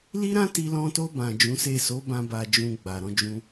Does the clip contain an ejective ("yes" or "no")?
no